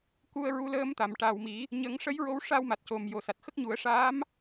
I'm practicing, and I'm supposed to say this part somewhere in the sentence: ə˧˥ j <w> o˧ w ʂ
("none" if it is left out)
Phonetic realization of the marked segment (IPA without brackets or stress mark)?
ɹ